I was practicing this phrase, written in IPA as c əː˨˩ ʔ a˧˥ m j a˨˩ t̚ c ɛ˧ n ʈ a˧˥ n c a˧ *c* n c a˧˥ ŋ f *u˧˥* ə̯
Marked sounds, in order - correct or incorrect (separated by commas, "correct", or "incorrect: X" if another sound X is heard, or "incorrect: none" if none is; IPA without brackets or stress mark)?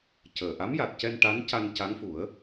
incorrect: none, incorrect: u˨˩˦